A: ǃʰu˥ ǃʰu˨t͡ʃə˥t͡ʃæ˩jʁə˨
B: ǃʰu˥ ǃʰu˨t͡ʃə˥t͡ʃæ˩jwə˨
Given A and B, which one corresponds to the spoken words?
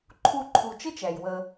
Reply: B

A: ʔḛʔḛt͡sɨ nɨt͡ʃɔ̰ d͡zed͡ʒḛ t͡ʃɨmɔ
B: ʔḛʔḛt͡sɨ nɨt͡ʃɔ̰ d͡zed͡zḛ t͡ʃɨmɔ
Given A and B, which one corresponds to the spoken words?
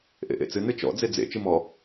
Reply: B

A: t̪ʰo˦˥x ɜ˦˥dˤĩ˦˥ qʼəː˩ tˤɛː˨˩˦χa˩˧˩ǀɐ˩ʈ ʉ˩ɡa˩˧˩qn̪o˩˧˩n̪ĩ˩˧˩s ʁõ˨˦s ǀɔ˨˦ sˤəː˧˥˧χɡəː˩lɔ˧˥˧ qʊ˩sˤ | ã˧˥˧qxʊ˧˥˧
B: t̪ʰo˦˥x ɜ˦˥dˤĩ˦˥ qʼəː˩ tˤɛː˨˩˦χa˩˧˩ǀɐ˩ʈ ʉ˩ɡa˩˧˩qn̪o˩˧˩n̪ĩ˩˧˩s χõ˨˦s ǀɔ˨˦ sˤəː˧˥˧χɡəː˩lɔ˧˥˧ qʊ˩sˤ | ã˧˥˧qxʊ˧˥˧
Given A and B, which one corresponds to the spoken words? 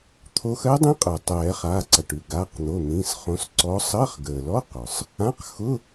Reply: B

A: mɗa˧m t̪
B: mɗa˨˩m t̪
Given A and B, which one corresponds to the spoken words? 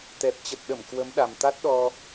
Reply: B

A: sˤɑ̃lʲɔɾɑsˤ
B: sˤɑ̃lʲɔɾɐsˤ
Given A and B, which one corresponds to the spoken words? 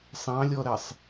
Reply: B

